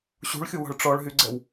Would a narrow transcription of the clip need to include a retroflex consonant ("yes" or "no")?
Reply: yes